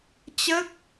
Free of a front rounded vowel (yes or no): yes